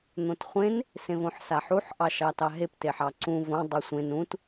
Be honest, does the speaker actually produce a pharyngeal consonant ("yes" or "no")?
yes